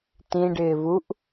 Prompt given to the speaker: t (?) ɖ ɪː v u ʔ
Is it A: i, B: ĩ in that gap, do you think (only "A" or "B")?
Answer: B